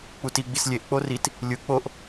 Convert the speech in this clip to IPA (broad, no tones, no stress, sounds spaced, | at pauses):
k͡p u t i ɡ͡b i s lʲ e ʔ k͡p o r i t | lʲ ɯ k͡p o ʔ